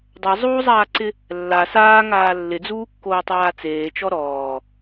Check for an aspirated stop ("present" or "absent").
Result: absent